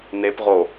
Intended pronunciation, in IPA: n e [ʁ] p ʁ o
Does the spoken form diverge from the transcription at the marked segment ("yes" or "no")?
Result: yes